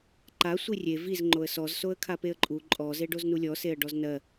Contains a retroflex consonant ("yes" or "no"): yes